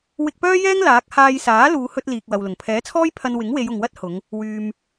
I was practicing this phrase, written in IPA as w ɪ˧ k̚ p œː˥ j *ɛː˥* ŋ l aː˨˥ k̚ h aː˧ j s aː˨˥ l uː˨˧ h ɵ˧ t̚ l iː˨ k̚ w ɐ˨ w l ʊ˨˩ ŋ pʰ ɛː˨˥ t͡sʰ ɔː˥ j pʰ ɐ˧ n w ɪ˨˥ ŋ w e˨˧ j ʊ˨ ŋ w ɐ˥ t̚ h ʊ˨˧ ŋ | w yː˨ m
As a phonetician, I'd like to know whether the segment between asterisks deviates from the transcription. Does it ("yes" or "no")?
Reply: no